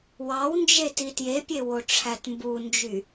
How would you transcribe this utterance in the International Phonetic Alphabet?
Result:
w ɑ w n d͡ʒ e t i t j e pʲ e w o ʈ͡ʂʰ æ t m b u n d͡ʒ y

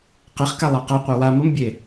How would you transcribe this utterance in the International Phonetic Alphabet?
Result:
q e χ k a lˠ a q ɤ qʷ e w a m ə m bʲ e

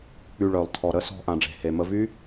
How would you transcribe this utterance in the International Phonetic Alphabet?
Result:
k͡p y˧ ɭ œ˨ lˠ tʰ ɔ˨ ɾ ə˦ s ɔ̤˧ ʔ ã˨ ɖ͡ʐ e̤˨ h e˨ m ə˧ v y˦

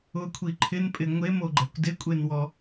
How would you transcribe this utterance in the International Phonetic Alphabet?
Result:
ʊ kʷʰ i ǃʰ ɪ n pʼ ɪ ŋʷ e m o ɡ͡ǃ ɛ kʷ d ɪ kʷʼ e n w ɔ

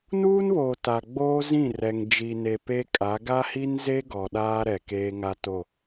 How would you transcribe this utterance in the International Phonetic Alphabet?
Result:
n uː˦ n β oː˨ t a˨ ɡ͡b oː˦ z ĩ˦˨ r ɛ˨ ŋ d͡ʒ i˨ n e˨ p e˦ kʼ a˨˦ ɡ a˦ h i˦ n z e˦ ɡ ɔ˨ ɗ aː˦ ɾ ɛ˨ k eː˦ ŋ a˦ t o˦˨

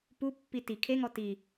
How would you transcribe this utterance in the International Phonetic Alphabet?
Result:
p u pː i t i kʰ e ŋ ɔ t i

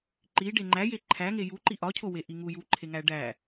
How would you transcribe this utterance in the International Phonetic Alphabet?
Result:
ǃ i ɖ e ŋ͡ǃ æ j e ǃʰ æ ŋ e j u ǃ i ʔ ɒ cʰ o w e ʔ i ŋ u j u ǃʰ e ŋ æ ɖ æ

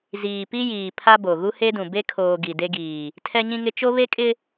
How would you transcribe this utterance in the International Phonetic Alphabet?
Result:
z iː˨ p i˦ j iː˨ pʰ a˦ b o˨ ɣ u˦ h e˦ d ũ˨ b e˦ kʰ oː˨ ɡ i˨ d e˦ ɡ iː˨ | tʰ ɛ˦ ɲ ĩ˦ ŋ ɪ˦ t͡ʃ o˦ β e˦ kʼ ɪ˦

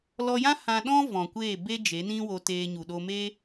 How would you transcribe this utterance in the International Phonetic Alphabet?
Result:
l ɔ˧ j ã˦ h ã˧ ɗ ɔ̃˦ v ɔ̃˨ kʷ eː˦˨ b e˧ d͡ʒ e˨˦ n ĩ˦ w o˧ t eː˧ ɲ u˨ ɗ o˧ m e˦

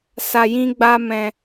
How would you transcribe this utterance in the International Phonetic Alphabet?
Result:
s a˧ j ĩ˦ ɡ͡b a˦ m ɛ̃˧

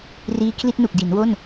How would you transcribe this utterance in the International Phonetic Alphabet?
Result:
r iː˧ kʰ l i˥˩ t̚ n u˨˩ k̚ d i˩˦ n w o˥˩ n

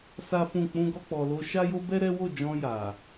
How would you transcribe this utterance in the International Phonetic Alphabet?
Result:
s a˦ f ũ˦˨ k͡p ũ˧ ɡ ɔ˧ k͡p ɔ˨ l o˧ ʃ a˦ j o˦ b ɛ˦ ɾ ɛ˦ w o˦˨ d͡ʒ ɔ̃˧ j a˨

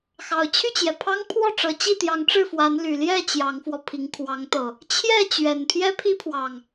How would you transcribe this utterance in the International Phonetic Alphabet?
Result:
x ɑ˨˩ ʊ̯ t͡ɕʰ y˥˨ t͡ɕ j ɛ˩ pʰ ɑ˦ ŋ pʰ w ɔ˥˨ ʈ͡ʂ ɤ˨˦ t͡ɕ i˥˨ t̪ j ɑ˨˦ ŋ ʈ͡ʂ ɻ̩˥˨ f w a˨˦ n l y˨˩ l j ɛ˥˨ t͡ɕ j ɑ˨˦ ŋ f w ɔ˧ pʰ i˨˦ ŋ kʰ w ɑ˨˦ ŋ t̪ ɤ˨˩ | t͡ɕʰ j ɛ˥˨ t͡ɕ ɥ ɛ˨˩ n pʰ j ɛ˦ pʰ i˦ pʰ w ɑ˨˩ ŋ

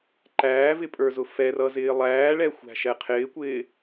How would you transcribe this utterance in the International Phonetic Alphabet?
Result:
ǃ æː v ɪ pʼ ə˞ z ʊ f ɛ r ʌ z ɪː lˠ æː ɭ ɛ xʷ æ̤ ʃ ɛ qʰ ɪː kʷ ɪː

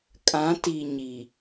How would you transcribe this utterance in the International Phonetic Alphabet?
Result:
kʼ ã˨˦ t i˨ ɲ i˨

